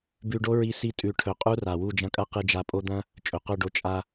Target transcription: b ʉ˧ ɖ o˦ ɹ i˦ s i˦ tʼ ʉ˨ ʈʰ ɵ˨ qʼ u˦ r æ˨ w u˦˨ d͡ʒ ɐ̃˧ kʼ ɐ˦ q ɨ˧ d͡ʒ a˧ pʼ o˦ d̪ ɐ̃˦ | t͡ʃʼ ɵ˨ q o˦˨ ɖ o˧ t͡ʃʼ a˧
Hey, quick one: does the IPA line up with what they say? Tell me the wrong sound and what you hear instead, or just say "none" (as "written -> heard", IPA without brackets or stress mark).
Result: æ˨ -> a˨